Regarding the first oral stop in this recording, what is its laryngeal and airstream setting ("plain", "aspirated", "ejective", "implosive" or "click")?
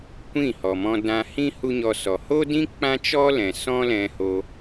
plain